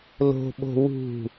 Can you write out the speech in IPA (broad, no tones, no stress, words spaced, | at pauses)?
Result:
lo̤ɓo̤ wṳ